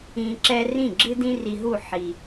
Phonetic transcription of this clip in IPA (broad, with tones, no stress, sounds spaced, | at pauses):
ĩ˧ ǁ ɛ˥ r ĩ˥˩ ɡ͡ǁ ɨ˥ d ĩ˥ r i˧ ɦ u˥˩ ħ i˩